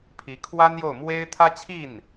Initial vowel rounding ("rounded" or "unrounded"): unrounded